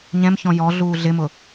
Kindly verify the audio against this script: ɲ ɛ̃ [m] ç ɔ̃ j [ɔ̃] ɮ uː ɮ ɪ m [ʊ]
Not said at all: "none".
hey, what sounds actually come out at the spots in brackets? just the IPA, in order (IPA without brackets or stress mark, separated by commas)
m, ɔ, ʊ